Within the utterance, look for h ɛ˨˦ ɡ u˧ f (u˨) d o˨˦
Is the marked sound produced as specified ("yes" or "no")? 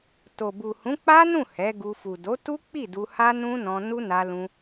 yes